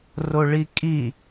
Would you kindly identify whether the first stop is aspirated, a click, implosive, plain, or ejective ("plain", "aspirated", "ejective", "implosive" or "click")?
ejective